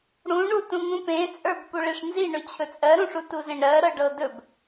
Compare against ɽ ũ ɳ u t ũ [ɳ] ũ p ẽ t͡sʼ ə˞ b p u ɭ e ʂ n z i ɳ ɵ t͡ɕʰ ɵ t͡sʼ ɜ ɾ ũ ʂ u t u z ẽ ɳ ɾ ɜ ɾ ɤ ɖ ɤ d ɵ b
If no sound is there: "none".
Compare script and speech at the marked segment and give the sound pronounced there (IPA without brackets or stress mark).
ŋ